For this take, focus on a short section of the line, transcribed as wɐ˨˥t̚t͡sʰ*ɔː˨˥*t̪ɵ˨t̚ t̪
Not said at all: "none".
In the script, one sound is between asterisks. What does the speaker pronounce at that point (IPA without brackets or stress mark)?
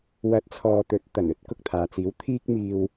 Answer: ɔː˨